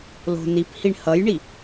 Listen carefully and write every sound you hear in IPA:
lo̤ niphiɳ hʌjɳi

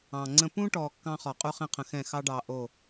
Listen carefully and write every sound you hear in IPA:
ɑ̃˨ŋ͡ǀə̃˦ pũ˦ʈɔ˨ kːɑ̃˦χɔ˨qʼu˦ χɛ̃˦qʰə̃˨xɛ̃˦˨ xɑ˦ɖɑ˨ ʔo˦˨

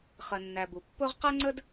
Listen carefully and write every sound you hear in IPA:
χɜ˩nːæ˩ bu˩ pːʊ˥ʁ qæ˥ŋ͡ǀə˥d

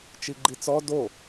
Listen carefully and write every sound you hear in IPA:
t͡ʃiɡ͡ǃit͡sɔ do

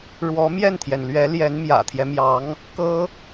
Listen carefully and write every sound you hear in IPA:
ɻwɔ˧˥mjɛ˥˩nt̪ʰjɛ˩nlɥɛ˧˥ ljɛ˧˥nmjä̰˨˩t̪ʰjɛ˦mjɑ˧˥ŋ | kɤ˥

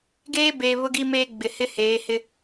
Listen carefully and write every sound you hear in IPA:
ɡeː˦beː˨ βʊ˦ɡi˦meː˦ ɡ͡bɪ˨hɪ˦ heː˨˦hɪ˦

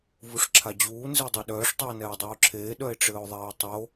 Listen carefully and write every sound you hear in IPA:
vuʂǁʰad͡ʑuː nzedˤeɗœːʂ tˤʉo̯nɛːdˤuːǁʰeː ɗœe̯ʈ͡ʂɘːo̯ðˤɛːe̯tˤo

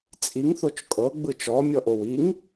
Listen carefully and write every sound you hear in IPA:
t͡sʼiŋ θot͡ʃkʼɤ ɡ͡bɯt͡ʃɔ mʲɔʔowiŋ

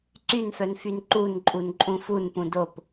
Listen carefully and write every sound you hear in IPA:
ǀynfœnfyn ǃunǃʼunǃʼũ funpũ dop

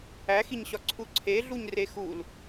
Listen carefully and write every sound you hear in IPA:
æxiɲɕɒ ǀʰuǀʰeɮuɲre xul

